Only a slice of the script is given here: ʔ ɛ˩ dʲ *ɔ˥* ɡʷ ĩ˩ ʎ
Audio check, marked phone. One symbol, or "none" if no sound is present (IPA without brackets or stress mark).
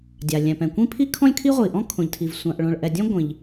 ɔ̃˥